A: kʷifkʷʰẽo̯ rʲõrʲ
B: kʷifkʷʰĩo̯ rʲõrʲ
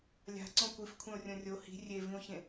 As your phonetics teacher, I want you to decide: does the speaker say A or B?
A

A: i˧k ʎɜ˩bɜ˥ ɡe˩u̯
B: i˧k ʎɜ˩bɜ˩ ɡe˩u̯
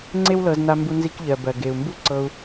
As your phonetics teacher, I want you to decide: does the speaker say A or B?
B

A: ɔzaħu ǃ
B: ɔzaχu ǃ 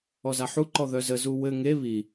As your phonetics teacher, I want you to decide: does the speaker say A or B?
A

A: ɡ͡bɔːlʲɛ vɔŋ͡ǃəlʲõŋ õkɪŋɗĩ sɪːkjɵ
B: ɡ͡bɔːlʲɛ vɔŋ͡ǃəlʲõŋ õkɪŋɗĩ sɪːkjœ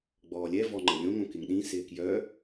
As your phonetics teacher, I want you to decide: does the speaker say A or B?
B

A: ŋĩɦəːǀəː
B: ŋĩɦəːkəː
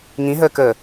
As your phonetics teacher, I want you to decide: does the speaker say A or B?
B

